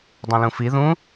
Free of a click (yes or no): yes